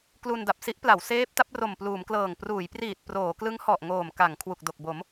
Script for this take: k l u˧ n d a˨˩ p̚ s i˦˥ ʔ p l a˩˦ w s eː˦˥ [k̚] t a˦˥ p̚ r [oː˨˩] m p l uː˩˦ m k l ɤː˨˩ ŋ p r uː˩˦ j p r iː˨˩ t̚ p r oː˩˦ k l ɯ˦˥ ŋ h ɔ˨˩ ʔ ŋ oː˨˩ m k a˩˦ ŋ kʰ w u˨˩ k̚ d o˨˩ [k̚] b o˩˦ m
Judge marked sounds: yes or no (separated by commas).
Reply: no, no, yes